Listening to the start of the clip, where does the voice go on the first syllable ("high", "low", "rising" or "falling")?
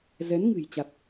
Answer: rising